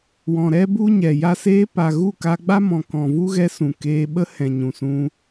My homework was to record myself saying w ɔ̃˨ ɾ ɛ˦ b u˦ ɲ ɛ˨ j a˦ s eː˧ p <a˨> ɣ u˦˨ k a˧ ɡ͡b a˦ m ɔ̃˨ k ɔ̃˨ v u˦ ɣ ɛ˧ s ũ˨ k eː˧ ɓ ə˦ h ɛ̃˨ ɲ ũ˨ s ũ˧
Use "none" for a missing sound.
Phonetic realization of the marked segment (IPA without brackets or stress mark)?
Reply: a˨